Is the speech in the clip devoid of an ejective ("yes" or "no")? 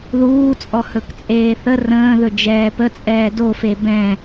no